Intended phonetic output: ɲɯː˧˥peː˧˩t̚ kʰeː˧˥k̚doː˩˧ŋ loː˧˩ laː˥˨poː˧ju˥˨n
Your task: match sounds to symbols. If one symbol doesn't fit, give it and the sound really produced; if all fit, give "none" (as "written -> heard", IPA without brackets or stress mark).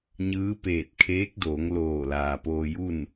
aː˥˨ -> aː˩